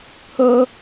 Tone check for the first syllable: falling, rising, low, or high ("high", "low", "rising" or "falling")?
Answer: high